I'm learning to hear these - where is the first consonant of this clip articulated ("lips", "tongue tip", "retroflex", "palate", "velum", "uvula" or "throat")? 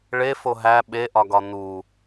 retroflex